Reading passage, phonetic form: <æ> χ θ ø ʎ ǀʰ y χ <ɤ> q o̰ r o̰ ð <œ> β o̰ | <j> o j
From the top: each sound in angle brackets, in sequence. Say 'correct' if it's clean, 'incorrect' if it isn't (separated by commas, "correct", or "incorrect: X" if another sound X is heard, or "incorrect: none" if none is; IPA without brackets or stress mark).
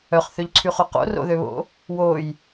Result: incorrect: œ, incorrect: o, incorrect: ø, incorrect: w